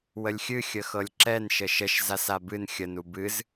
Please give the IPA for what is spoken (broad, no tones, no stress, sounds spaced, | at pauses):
w ə lʲ xʲ ɨ xʲ ə x ɤ lʲ ǁ ɛ n ʃ ə ʃ ə ʃ z a s a b ɨ n xʲ ə n u b ɨ z